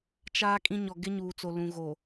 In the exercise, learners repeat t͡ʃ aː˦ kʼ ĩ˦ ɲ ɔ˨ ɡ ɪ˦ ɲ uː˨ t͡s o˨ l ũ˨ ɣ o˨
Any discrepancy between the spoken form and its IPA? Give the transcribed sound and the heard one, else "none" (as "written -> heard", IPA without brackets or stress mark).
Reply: none